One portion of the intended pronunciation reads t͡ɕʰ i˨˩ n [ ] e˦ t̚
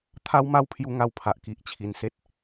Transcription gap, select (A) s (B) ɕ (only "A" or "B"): A